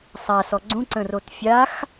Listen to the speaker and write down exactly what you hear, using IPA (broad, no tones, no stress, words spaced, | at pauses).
sˤasɔ ɡ͡ǀũǀə̃rot fʲax